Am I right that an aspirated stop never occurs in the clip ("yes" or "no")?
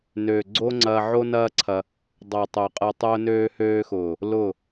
no